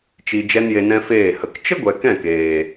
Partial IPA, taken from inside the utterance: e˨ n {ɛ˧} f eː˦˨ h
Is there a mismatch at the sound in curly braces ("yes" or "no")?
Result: yes